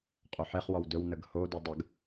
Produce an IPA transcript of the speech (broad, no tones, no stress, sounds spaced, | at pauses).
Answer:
qʼ o ħ e χ w ɔ w d ɵ w n ə ɡ h o d o dˤ ə ɡ